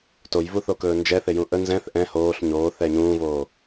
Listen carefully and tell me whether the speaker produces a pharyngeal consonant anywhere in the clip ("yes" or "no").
no